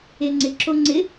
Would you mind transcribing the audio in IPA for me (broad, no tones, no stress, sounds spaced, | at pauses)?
e ŋ͡ǀ ɪ ǁ o ŋ͡ǀ ɪ